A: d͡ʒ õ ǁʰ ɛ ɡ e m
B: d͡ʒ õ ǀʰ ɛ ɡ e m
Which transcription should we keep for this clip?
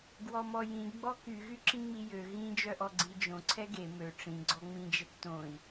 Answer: B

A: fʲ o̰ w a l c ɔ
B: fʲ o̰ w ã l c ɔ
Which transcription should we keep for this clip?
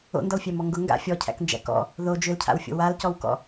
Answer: A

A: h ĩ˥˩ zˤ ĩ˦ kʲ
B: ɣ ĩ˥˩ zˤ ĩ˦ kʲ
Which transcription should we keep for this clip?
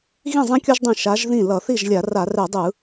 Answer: B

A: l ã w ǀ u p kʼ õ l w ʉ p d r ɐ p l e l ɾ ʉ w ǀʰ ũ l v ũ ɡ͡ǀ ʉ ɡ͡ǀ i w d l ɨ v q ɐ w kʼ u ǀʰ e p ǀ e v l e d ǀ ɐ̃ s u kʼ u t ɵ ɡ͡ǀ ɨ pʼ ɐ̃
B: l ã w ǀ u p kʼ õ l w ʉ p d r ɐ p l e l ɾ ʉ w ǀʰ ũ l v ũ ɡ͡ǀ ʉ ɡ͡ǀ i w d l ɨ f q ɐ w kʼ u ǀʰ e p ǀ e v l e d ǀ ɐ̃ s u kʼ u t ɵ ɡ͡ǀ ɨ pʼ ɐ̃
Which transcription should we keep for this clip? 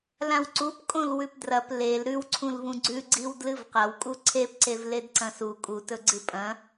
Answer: A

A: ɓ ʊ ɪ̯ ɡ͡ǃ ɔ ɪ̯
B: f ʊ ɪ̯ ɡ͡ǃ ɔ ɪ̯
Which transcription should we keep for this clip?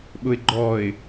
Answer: A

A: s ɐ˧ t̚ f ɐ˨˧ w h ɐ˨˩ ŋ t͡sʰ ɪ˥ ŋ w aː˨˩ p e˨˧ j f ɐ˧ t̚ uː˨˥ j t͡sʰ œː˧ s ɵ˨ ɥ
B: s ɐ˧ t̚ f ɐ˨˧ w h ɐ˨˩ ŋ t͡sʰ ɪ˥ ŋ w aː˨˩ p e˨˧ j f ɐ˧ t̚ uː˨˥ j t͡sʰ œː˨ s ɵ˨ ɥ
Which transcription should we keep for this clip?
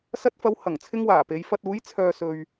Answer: B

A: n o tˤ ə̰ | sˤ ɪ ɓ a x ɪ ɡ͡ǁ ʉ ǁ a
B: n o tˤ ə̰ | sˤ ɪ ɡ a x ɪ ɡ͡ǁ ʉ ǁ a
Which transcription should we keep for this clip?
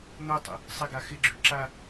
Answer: B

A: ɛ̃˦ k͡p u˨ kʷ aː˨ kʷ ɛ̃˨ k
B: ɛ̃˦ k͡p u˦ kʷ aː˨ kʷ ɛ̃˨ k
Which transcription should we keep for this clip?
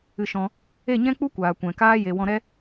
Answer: B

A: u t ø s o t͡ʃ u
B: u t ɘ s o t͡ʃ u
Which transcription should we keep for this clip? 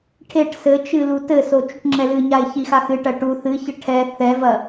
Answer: B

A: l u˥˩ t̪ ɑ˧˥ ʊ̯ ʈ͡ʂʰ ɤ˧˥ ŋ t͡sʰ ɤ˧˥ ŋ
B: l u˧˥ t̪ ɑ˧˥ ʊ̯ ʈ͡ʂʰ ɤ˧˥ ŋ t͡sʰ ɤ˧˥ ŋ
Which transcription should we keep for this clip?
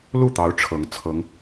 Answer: A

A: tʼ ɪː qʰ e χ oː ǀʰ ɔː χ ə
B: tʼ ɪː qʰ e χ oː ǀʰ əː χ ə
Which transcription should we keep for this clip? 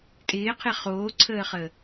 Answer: B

